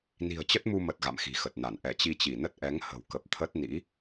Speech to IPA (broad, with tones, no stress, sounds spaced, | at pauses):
n i̤˨˩ ə̯ t͡ɕ ə˦˥ t̚ m u˧ m ə˨˩ t̚ ɣ a̰˧˨ m x i̤˨˩ x ə˨˩ t̚ n a˧˩ n ʔ ɛ˧˩ t͡ɕ i˧ t͡ɕ i˧˩ n ə˦˥ t̚ ʔ ɛ˨˦ ŋ h ə̤˨˩ w k ə˨˩ p̚ t̪ʰ ə˦˥ t̚ n ḭ˧˥